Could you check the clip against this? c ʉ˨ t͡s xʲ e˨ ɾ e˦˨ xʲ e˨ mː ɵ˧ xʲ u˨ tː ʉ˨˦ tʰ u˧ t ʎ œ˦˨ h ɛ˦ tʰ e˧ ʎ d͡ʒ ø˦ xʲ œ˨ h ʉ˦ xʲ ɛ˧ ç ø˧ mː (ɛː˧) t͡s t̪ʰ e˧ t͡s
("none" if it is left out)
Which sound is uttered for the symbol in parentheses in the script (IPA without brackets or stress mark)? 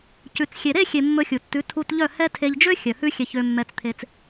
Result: ɛ˧